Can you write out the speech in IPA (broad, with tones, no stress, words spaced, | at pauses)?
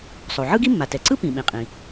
sˤo˩ ʕɯ˥ɡi˥mːa˩ tɛ˩ǀɯ˥ pĩ˩ɓĩ˩qʼĩ˩